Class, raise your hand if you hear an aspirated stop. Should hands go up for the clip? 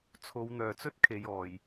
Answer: yes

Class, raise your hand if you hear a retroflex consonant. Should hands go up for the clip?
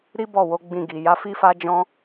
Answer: no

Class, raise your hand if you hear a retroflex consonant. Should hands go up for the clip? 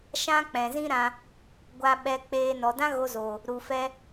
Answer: no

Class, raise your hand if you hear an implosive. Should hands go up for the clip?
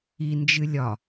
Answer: no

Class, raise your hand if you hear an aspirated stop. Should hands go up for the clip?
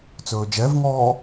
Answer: no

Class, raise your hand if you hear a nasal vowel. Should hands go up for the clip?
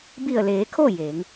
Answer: no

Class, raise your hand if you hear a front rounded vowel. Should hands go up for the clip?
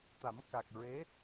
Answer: no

